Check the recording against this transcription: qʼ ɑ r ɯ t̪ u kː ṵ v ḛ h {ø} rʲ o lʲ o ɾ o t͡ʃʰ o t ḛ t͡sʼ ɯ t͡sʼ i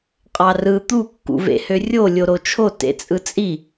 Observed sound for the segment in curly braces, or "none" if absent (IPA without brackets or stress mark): ø